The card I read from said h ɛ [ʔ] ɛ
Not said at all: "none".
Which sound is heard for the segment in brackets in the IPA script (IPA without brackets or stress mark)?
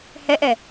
ʔ